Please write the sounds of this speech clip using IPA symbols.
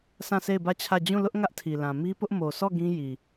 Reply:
sã˦˨se˦˨ɪ̯bä˦˨t͡ɕʰä˦˨ d͡ʑũ˦˨lʊ˦ʔ ŋä˦ʔtʰi˨lã˨ mi˦pʊ˦ʔ mo˨sɔ˦˨ ɡĩ˦ji˨

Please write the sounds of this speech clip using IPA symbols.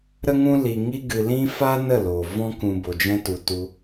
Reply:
ɾə˦ŋũ˦ li˧ŋi˦ɡɨ˧ lĩ˦ fa˦nə˦˨lo˨ vɔ̃˦kũ˧ bo˨d͡ʒɛ̃˧ tu˨tu˧

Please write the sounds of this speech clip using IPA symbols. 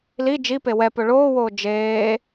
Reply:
li d͡ʒipe wɛpɵ ɭoːwoː d͡ʒeː

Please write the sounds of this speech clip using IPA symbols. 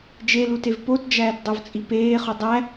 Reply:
d͡ʒelutev potd͡ʒæːtdˤovt͡sʼi peːχu dˤæ

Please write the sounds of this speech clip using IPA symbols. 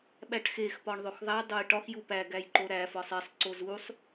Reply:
ɓæʈxex pɒɳðˤoxðˤæ dˤojʈɒx jupæ ɡæjǃoɾæ fɒsˤesˤ ǀozusˤ

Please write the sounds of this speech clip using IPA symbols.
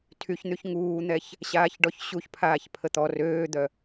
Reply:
tʰyçn̪yç ŋuːn̪ɛç | ɕaːçɖɔçɕuçpʰaːç pʰət̪ɔ røːd̪œ

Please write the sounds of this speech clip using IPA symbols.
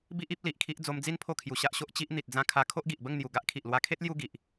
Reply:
bi˦ʔi˦p̚ li˨ʔkʰi˦ʔ d͡zo˧md͡zi˦n pʰo˥˧kʰju˧ɕa˦ʔɕo˦ʔ t͡ɕi˦ʔ n̪i˨t̚d͡zã˧ kʰa˧ kʰo˦ʔɡi˨ʔbə˥˧ŋn̪ju˨˩ ɡa˦ʔkʰi˨ʔlwa˧kʰe˦t̚ lju˦ɡi˨ʔ

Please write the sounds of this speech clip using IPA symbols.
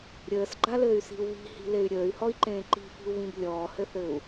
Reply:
ɾʲəːsɡ͡ǃalɘːy̯si̤u̯ βi̤hi̤ley̯ ɾʲəːy̯hɔi̯ǃẽː ǃi̤fi̤u̯βĩb lʲɔːhɘθɘːu̯

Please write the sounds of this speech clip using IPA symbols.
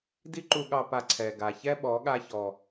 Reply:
di˦ǃu˧ɠɑ˧ pa˧ ǀʰɛ˨ ɡa˨çɛ˦ɓɔ˨˦ ɠa˧çɔ˨

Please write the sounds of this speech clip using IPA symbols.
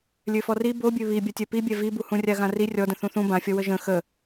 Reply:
lʲøfɔri bobʲø βibʲa tʲœpibʲɛ vibuhũ rʲaɣãri rʲɔdə̃ θũθũ bãfʲɔwə ʒə̃ xə

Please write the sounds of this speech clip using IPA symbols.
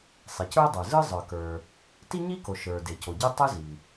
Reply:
sˤe˩cə˞˥ dˤə˞˩ zɯ˥zˤə˞˩kə˞˩ | ti˥ɲi˥ko˩ ʃə˞˩ de˩co˩ɟɯ˥ tˤɯ˥zi˩

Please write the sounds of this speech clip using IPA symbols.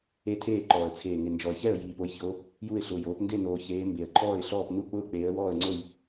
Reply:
e˥˨tʰeː˥˨ǃɔː˨˩ə̯ t͡sʰeː˨˩ŋɪ˨˩nd͡ʒɔ˨˩ə̯çɛ˥˨ə̯ jiː˨˩po˨˦jço˨˦ | ju˥˨ɪ̯ɬʊː˨˩j oː˨˦p nde˥˨noː˨˩ çeː˨˦ mbe˨˩ə̯ǃʰɔː˥˨ɪ̯ɬɔː˥˨p nu˥˨k͡pʊː˥˨ k͡peː˨˦ə̯wɔː˥˨ə̯ŋ͡ǀo˥˨j

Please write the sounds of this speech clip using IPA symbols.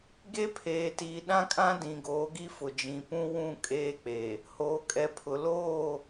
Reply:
ɡe˦pʰeː˨tiː˨ ɗã˦kʼã˦ dĩ˨ɡoː˨˦ɡi˦fʊ˨ d͡ʒĩ˨pũ˦wũ˦˨ kʼeː˦k͡pe˨ | hoː˨kʼɛ˨pʰʊ˨ loː˦˨

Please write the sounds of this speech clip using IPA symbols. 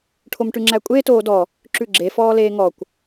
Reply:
ʈʰomʈʉŋ͡ǁækʷʼeːt oːdɔ | ǁʉɡ͡ǁe fɔːleːŋɔkʷ

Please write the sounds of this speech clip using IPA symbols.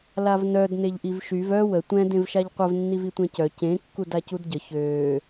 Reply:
lavnœd neʎʔivʃyv œ wə tʷɛ̃ dẽvʃaʎqʷəv nːivitʷɛ̃cœ cẽ kːudacudɟə çøː

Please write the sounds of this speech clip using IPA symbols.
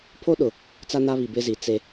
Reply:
pʰo˦ɗʊ˨ | t͡sa˦na˦ βi˨bɪ˦zi˨ t͡se˦

